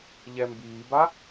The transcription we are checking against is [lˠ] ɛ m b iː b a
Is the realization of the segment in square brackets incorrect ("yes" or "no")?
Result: yes